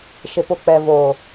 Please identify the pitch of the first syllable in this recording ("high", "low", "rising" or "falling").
low